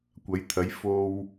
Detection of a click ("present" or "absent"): absent